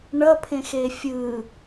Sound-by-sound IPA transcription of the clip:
ɳ ʌ pʰ ẽ x e fʲ ɯ

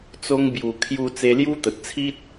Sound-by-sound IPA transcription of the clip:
t͡s o˧ ŋ b j u˨˩ kʰ j u˧ t͡s e˧ l j u˦ t̪ ə˨ t̚ t͡sʰ i˦ t̚

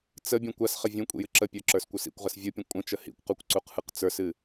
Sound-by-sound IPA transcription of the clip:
t͡s ə bʲ ũ kʷ a s χ ə vʲ ũ kʷʼ ḭ j ɨ ǁ ə pʲ ə˞ ǁ ə˞ s kʷ ə˞ s ḭ kʷ ʁ ə s vʲ ɯ pʲ ə̃ kʷʼ ə̃ t͡ʃ ə h ḭ kʷ q u kʷ ǀ u q h ɯ q t͡s ə˞ s ɨ

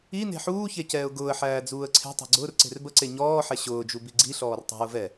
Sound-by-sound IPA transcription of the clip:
i n e̤ ħ uː ç e c ɛː ʊ̯ ɡ ʊː ə̯ ħ æː d͡z uː ə̯ ǀʰ e̤ tˤ e̤ ɡ͡ǀ ʊː r ǀ e̤ r b ə ǀ e ɲ ɔː ħ ɛ ɕ ʊː d͡ʒ u b i ɡ͡ǀ i ɬ ɔː r tˤ e̤ ʊ̯ v ɛ

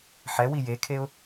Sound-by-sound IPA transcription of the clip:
ħ ɛ w i j e kʰ e ʊ̯

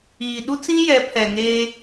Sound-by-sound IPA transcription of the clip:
iː˨ ɗ u˦ t͡s ĩ˦ j ɛ˨˦ pʰ ɛ˨ ŋ eː˦

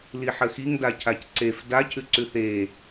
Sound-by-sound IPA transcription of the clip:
l i ħ ə x i ŋ d a cʰ a c ǀ e f d a cʰ ʉ ǀ ʉ θ e

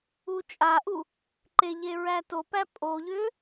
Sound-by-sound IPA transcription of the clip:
u t͡ʃʼ a ʔ u | ǃ e ʎ e ɹ æ t o p æ pʼ o ʎ ʏ

